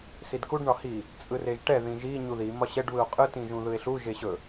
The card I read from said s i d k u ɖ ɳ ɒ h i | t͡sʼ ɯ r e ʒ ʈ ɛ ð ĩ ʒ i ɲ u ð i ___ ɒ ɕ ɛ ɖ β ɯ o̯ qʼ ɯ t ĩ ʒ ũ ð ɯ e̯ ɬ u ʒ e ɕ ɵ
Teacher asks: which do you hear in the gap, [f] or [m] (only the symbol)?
m